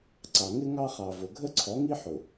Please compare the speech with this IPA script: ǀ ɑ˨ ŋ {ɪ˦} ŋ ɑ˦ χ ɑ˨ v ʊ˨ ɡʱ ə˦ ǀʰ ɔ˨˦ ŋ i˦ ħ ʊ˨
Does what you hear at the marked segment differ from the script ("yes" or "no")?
no